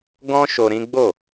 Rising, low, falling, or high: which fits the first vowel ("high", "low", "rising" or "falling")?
high